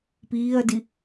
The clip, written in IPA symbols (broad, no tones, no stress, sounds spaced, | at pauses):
p iː ɐ̯ d i